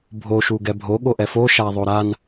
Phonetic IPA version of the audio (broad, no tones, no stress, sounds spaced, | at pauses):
bʱ o ʃ u ɡ ɛ bʱ o ɠ o ʔ ɛ f o ʃ a ðˤ o ɾ a n